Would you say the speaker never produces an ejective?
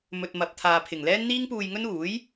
yes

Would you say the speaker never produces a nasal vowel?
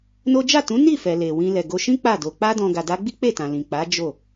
no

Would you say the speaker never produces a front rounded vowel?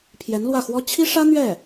yes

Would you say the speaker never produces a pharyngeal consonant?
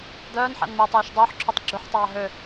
no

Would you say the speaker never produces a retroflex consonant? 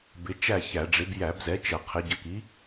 no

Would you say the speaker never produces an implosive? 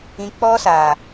yes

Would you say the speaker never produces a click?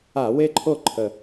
no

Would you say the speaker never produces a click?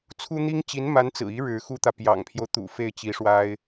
yes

